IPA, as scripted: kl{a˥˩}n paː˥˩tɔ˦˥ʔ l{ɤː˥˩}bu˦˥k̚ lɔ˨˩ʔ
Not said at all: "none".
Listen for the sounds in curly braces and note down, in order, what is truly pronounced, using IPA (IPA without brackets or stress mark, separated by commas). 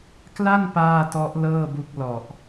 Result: a˥˩, ɤː˥˩